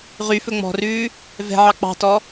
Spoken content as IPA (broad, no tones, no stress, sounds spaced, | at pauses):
ʁ y f ɵ ŋ͡m ɔ̤ r ʉː | v ɛ̤ ʕ ɑ k͡p ɑ̤ t ɔ